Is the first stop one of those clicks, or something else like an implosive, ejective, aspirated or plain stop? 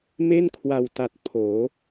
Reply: aspirated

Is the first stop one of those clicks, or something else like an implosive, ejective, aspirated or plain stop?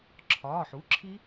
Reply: click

